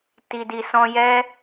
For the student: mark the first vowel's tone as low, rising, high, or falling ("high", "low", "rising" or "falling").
low